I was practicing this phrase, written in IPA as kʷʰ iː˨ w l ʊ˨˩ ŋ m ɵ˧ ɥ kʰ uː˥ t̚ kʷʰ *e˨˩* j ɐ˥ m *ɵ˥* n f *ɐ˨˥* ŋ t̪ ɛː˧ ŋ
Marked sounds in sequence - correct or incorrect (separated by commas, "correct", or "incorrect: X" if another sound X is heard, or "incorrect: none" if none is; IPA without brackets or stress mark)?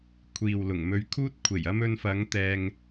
correct, incorrect: ɵ˧, incorrect: ɐ˨˧